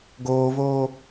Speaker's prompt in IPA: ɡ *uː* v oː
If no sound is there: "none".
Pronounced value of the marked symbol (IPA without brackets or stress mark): oː